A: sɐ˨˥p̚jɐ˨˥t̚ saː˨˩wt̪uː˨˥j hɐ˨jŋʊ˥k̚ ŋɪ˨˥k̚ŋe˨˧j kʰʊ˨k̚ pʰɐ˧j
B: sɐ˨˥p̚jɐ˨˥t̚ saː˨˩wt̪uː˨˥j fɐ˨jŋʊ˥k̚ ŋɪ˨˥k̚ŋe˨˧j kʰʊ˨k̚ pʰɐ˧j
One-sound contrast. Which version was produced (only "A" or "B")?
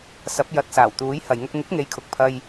A